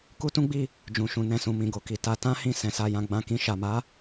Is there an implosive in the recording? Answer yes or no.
no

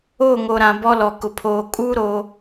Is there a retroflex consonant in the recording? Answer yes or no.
no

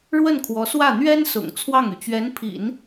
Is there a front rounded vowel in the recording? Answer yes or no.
yes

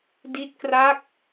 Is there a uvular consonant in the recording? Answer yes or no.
no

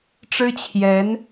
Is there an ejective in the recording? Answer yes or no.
no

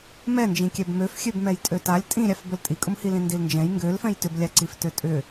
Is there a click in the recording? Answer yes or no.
yes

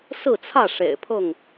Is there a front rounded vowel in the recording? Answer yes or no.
no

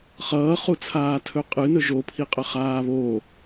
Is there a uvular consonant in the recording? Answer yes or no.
yes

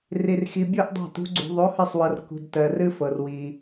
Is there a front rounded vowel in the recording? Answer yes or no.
no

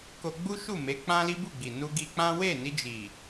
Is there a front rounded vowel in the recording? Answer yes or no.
no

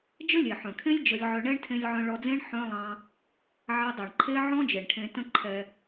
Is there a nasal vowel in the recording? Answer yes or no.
yes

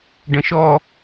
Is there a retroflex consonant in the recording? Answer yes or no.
yes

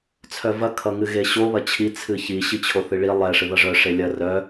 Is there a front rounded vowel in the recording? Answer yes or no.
yes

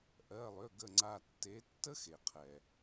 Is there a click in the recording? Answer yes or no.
yes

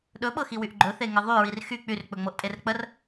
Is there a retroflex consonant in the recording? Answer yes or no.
no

